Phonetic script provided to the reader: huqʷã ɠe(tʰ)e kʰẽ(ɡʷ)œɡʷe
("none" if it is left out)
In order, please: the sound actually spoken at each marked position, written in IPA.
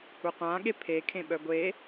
pʰ, ɓ

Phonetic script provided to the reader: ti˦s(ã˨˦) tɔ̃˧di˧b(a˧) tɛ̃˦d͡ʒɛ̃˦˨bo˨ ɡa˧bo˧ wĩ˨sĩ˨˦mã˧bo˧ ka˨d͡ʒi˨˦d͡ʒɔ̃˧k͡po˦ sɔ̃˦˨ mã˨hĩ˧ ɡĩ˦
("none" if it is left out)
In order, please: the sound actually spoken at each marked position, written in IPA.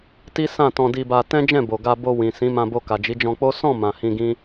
ã˦˨, a˧

